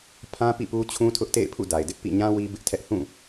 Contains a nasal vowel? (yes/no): yes